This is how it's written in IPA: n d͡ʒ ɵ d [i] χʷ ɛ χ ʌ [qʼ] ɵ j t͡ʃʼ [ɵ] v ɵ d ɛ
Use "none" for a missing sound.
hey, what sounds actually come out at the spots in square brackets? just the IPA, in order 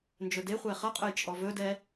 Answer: e, qʼ, ɔ

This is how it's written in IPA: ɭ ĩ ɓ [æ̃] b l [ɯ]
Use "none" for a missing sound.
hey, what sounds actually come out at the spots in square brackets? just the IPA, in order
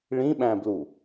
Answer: æ̃, u

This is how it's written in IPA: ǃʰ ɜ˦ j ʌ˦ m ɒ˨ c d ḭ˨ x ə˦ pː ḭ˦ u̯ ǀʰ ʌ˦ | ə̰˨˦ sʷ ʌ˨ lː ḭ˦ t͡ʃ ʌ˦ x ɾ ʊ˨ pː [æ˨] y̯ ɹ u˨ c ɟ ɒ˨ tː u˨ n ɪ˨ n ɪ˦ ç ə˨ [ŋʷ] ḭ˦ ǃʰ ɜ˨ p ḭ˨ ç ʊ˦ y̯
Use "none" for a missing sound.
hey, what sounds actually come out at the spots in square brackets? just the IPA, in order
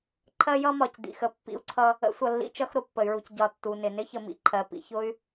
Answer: ə˨, m

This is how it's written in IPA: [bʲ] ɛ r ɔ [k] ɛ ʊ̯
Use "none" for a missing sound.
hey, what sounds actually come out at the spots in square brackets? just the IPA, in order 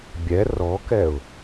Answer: bʲ, k

